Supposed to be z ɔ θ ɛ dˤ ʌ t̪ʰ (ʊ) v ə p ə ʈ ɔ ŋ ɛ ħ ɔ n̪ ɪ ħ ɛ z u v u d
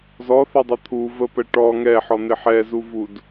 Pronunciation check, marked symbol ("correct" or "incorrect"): incorrect